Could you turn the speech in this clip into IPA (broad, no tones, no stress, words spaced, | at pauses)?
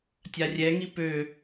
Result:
tʲarʲɛŋi pø